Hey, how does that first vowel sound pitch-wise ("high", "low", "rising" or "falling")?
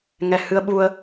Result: low